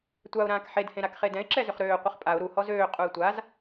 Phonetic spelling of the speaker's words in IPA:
tʷ a ʊ̯ ɾ ãː k ħ e d h ẽ ɾ a k χ e d ɛ̃ ɪ̯ ǁ ɛ z ʏ χ ɾ øː qʷ ə χ pʼ a ʊ̯ ɾ u h ɔ z øː qʼ u ɪ̯ tʷ a z

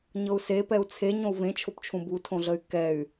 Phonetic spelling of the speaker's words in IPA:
ɲ ɤ u̯ s e p ɛ u̯ t͡sʰ e ɲ õ u̯ v ẽ t͡ʃʰ o p t͡ʃʰ ũ b u tʰ õ ɮ ə y̯ k ɛ y̯

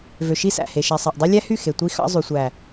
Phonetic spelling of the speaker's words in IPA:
v ø˨ ʃ i˦ s æ̰˨ h e˨ ʃ æ˨ sˤ ɑ˨ ʔ dˤ i˦ lʲ æ˦ h y˦˨ x e˨ tʷ i˦ x ɑ̰˦ zˤ y˨ sʷ æ˨

